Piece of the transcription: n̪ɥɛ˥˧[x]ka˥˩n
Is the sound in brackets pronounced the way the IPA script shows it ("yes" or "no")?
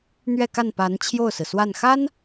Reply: no